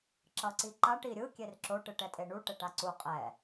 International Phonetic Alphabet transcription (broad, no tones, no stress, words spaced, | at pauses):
ǁʌǀiǃaʈ iɾʲɯ kʲerǁo ʈɯʈɛtʼeɳu ʈɛʈaǀu qʼɛ